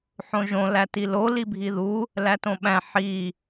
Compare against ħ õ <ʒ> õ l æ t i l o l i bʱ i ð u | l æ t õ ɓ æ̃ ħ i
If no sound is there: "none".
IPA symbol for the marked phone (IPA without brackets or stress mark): ʒ